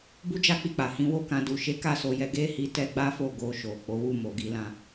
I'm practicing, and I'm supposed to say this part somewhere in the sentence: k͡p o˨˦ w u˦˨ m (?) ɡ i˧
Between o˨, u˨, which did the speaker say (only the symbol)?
o˨